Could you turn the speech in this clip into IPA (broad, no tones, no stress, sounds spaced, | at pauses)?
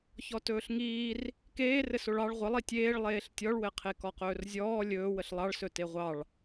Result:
ç ɔ t ɵː ɬ ŋ iː r | k eː r ɘ s o ɭ ɑ ɭ ʁʷ ə lˠ i tʲ eː ɭ lˠ eː ɬ tʲ ɔ ɭ w ɘ qʰ e k ɔ q ɵː r zʲ ɔː lʲ ɵː w ə ɬ lˠ ɑ ɭ s ɵ t e ʁʷ ɑ ɭ